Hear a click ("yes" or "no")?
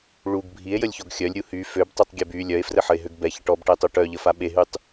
no